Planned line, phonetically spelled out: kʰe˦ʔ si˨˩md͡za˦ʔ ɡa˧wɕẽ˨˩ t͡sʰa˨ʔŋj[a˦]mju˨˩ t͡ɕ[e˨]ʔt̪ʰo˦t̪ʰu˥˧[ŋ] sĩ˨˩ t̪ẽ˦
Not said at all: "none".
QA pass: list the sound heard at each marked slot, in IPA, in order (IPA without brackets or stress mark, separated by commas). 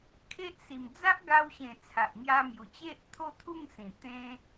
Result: a˧, e˦, ŋ